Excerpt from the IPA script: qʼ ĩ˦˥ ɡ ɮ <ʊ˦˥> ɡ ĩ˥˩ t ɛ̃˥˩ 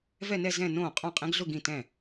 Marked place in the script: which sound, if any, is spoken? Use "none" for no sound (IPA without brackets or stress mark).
ʊ˥˧